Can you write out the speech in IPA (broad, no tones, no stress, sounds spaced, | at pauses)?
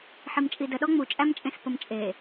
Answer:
ħ i m t͡ʃʼ i d ə ɗ ɔ ŋ͡m u t͡ʃʼ æ m t͡ʃʼ ẽ s p ə m t͡ʃʼ e